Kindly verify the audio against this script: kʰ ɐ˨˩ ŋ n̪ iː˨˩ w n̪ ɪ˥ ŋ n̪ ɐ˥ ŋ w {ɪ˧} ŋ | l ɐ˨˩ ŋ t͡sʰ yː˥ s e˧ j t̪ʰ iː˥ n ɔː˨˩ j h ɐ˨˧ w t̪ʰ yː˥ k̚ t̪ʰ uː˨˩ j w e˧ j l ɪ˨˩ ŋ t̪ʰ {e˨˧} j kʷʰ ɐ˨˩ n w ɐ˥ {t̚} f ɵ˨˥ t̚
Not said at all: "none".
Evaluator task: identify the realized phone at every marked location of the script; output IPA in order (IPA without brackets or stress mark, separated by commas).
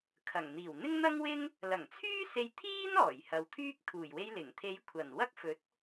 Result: ɪ˥, e˨˧, k̚